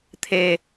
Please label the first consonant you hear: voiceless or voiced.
voiceless